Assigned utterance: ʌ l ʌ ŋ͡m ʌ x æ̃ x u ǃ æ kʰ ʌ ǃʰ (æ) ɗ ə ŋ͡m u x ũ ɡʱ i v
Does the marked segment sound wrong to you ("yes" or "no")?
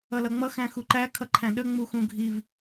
yes